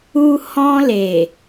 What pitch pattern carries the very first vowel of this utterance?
high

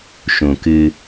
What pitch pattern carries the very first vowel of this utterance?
low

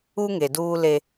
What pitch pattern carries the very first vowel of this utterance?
high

